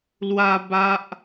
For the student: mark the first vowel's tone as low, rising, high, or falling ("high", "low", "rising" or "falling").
high